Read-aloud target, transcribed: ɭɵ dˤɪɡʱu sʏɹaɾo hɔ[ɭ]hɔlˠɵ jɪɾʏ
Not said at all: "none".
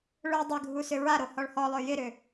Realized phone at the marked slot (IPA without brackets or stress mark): ɭ